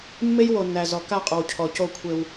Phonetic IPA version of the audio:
mː e˦ j w o˨ nː æ˨ z ɔ˨ k a˦˨ qʼ ɔ˨ w cʰ ɔ˨ c o˦ kʷʰ e˦ w

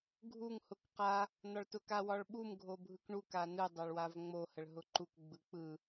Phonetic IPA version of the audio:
ɡʱ u ŋ h ʊ k q a | n ɒ ɭ t ʊ k a w ɒ ɭ ɓ u m ɡʱ o bʱ ɯ k ɳ u k a n ɯ dˤ a ɭ w a v ŋ͡m o h ə ɭ ɦ ʊ ǃ u k ɡ͡b ɯ k͡p ɯ

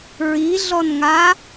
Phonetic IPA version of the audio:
ɹ i ɮ ɔ n ŋ a

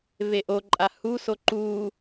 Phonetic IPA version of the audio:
v e ʔ o ǃʼ a h u s o ǃ u

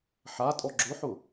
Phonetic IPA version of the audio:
ħ a tʼ ɔ ɡ͡ǁ ʊ ħ ʊ

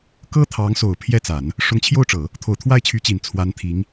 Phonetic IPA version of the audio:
k ɤ˥ t̪ʰ ɑ˧˥ ŋ s o˨˩ ʊ̯ pʰ j ɛ˥˩ t͡s a˨˩˦ n | ʂ ʊ˧˥ ŋ t͡ɕʰ j o˥˩ ʊ̯ ʈ͡ʂ ɤ˨˩˦ | t̪ʰ o˨˩ ʊ̯ t̪ʰ w a˥˩ ɪ̯ t͡ɕʰ y˧˥ t͡ɕ i˨˩ n t͡sʰ w a˧˥ n t̪ʰ i˧˥ ŋ

